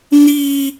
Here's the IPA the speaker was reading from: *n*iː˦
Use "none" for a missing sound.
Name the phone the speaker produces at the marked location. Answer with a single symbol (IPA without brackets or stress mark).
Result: n